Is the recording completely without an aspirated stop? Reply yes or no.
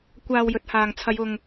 no